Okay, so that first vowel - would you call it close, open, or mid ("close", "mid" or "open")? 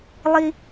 close